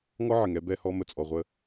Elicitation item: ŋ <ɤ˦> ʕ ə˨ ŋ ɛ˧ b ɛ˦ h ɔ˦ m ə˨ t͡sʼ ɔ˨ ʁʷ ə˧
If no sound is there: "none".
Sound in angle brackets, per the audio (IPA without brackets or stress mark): ɔ˦